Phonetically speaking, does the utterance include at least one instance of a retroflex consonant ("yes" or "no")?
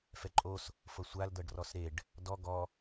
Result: yes